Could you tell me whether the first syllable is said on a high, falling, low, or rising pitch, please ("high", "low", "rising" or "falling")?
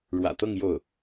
low